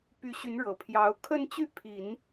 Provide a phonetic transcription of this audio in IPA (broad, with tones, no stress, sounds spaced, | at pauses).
p y˧˥ ɕ y˧˥ n ɻ ɤ˨˩ pʰ j ɑ˧˥ ʊ̯ kʰ ə˥˧ n t͡ɕ y˥˩ pʰ i˨˩˦ n